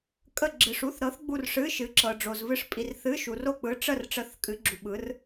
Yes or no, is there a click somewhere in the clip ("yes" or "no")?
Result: yes